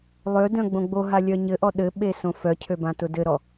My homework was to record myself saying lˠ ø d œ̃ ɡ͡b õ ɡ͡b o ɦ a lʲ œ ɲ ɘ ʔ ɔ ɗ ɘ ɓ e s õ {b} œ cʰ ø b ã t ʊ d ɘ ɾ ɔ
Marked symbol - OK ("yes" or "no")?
no